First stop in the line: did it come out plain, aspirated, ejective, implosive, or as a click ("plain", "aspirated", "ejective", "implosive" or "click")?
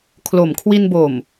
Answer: aspirated